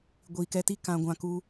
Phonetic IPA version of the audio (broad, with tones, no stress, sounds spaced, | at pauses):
ɡʷ i˨ k ɛ˧ t i˦ k ã˧ ɡʷ ã˧ k u˧